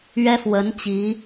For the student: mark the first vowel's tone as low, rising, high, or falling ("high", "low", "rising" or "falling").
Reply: high